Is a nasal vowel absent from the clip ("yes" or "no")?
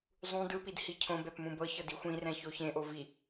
no